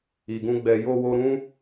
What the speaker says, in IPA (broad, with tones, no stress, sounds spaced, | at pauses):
i˨ ɡ ũ˧ ɡ͡b ɛ˧ j o˧ w o˧ ɾ ũ˦